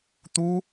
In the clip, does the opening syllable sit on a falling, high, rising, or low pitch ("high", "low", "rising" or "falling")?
high